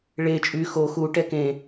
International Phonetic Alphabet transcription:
ɭe t͡ʃʼy xo xuʈɛ kẽ

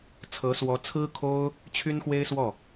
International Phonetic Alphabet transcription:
t͡sʰɤ˧˥swɔ˧˥t͡sʰɹ̩˥kʰo˥ʊ̯ | t͡ɕʰy˥nxwe˥ɪ̯swɔ˥˩

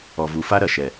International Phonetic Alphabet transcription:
ɔ˨vu˨fa˦ ɾɐ˨ʃɛ˨

